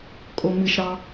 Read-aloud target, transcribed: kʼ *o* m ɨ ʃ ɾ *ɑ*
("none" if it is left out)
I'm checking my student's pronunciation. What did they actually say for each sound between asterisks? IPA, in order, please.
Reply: o, ɑ

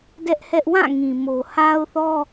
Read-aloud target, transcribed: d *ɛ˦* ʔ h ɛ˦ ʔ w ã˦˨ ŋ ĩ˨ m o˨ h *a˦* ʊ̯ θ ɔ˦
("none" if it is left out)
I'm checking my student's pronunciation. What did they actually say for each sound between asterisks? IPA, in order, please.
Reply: ɛ˦, a˦

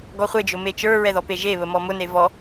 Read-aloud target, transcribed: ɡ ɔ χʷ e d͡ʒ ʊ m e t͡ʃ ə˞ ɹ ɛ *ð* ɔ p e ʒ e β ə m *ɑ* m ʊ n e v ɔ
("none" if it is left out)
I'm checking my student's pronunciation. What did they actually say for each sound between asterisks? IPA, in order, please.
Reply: ð, ɔ

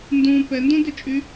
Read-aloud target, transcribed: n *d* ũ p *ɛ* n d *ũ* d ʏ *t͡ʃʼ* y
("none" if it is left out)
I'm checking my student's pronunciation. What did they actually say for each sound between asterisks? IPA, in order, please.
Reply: d, ɛ, ũ, t͡ʃʼ

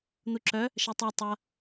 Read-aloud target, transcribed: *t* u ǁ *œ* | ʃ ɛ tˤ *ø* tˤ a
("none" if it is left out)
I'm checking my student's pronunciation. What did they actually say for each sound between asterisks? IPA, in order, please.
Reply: n̪, œ, ø

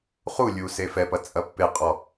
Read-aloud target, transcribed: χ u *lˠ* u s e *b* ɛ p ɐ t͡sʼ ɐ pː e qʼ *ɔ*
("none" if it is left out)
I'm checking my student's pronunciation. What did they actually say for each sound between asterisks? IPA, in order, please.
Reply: lʲ, f, ɔ

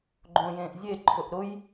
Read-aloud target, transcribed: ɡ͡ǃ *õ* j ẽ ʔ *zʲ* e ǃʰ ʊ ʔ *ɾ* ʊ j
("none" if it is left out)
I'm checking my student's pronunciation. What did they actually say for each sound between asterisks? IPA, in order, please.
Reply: õ, zʲ, ɾ

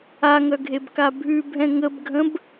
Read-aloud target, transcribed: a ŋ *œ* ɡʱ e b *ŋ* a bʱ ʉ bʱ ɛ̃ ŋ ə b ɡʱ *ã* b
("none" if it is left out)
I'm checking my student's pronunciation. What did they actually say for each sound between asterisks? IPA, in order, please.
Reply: œ, k, ə̃

